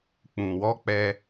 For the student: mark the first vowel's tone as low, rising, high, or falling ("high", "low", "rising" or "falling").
low